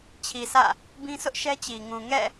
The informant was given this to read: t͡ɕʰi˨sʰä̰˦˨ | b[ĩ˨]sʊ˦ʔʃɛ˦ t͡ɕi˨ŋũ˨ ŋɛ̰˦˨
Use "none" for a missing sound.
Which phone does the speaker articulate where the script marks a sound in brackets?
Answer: ĩ˦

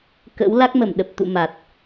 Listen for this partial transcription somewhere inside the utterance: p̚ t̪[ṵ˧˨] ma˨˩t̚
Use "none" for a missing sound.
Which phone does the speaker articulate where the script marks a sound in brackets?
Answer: ṵ˧˨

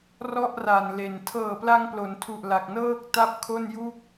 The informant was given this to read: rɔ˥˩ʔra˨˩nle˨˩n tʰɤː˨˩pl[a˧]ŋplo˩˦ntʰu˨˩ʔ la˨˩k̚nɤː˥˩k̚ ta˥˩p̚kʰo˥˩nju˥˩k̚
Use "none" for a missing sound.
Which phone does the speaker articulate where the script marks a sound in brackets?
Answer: a˧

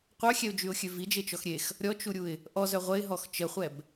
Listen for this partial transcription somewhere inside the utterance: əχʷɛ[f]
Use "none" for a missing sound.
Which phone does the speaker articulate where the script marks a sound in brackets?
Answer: b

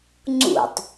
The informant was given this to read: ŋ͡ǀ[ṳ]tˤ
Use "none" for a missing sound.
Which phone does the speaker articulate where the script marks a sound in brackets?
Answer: ṵ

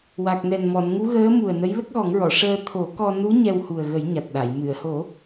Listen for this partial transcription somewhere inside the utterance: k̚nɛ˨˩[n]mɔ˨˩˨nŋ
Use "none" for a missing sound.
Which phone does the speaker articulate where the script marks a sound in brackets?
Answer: n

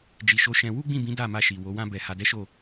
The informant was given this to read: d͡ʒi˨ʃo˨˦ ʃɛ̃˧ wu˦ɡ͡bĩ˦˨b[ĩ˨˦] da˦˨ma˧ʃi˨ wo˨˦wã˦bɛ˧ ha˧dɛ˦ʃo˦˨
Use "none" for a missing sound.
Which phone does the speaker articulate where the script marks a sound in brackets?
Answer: ĩ˨˦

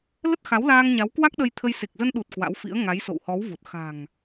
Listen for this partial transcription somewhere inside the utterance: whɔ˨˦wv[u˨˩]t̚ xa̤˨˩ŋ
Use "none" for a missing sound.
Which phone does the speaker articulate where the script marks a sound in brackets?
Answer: u˨˩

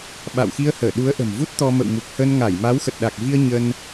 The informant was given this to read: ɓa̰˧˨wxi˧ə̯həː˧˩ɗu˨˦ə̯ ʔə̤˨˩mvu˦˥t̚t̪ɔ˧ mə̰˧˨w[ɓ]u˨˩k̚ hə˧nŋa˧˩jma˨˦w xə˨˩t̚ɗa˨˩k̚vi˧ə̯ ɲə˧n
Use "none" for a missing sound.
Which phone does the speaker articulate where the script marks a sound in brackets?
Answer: m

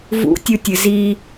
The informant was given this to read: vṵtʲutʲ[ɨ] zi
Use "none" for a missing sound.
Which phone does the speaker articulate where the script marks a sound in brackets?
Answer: ɨ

